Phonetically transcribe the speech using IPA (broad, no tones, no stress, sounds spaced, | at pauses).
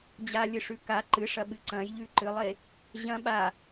d͡ʑ a lʲ ɨ ʂ ʉ k a ǃ ɨ ʂ ɐ ɓ ɨ ǀ ɐ̃ j ʎ ʉ ǃ ɨ lˠ e | ʑ ɐ̃ ɓ a